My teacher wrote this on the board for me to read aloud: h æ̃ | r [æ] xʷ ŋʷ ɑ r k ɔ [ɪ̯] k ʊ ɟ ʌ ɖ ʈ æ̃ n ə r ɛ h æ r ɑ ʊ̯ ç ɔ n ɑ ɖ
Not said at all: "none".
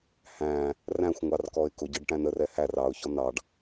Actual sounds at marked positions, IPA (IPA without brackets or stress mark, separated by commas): æ̃, ɪ̯